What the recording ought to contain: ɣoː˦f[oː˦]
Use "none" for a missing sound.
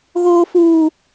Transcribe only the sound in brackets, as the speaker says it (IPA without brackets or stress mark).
uː˦